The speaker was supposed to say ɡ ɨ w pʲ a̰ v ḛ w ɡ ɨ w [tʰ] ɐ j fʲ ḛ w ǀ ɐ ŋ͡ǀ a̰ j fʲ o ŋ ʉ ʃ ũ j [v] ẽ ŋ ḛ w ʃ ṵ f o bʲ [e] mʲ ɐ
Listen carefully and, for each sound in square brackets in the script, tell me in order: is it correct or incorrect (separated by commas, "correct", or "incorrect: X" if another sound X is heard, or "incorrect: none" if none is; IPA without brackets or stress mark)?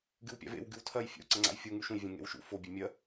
correct, incorrect: vʲ, correct